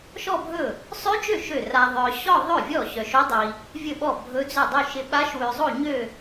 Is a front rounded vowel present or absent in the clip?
present